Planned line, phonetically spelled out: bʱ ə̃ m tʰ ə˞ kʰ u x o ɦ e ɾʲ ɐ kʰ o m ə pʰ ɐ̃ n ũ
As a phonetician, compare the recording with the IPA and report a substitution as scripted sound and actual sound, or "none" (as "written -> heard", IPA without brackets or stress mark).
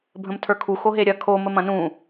pʰ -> m